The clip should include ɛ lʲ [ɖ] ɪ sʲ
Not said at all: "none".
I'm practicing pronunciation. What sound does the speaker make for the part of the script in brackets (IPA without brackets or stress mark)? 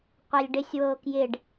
ɖ